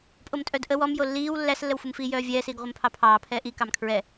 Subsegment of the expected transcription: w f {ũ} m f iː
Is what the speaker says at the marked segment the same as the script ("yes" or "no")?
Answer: no